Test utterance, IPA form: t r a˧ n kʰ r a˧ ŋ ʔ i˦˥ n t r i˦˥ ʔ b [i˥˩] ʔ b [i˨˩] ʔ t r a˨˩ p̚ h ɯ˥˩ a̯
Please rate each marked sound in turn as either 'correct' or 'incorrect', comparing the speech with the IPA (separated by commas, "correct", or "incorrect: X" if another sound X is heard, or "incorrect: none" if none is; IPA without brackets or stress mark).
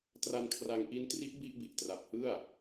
correct, correct